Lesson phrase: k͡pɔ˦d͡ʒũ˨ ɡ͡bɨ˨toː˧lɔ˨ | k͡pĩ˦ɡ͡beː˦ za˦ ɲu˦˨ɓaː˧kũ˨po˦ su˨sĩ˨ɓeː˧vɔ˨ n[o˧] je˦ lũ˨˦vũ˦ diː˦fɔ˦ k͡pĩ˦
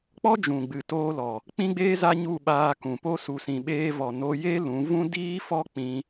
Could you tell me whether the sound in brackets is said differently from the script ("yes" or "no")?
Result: no